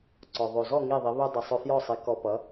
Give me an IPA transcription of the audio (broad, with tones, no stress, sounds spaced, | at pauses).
ǀ ɔ˩ ðˤ o˩ z ɔ˥˩ ŋ i˥˩ ðˤ i˩˥ β o˥ dˤ i˩ sˤ œ˧ f j ɔ˥˩ sˤ i˩˥ k ɔ˧ p ʌ˩˥